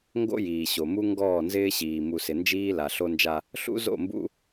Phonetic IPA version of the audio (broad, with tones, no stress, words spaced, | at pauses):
ŋɡo̰˦jiː˨ɕo˨mu˦ ŋɡɔː˦˨nzɪː˦ɕiː˨ mu˨sɪ˨ nd͡ʒiː˦la˨ ɬo˦nd͡ʒa˦ | ɬṵ˦zo̰˦˨mbṵ˦